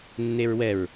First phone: nː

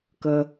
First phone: k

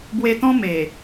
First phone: b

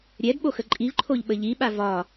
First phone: ɾʲ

